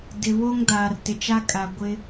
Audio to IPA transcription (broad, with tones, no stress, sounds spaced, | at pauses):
d ɪ˨ β o˦ ŋ d aː˨ r t ɪ˨ t͡ʃ a˦ kʼ a˨ ɡʷ ɪ˦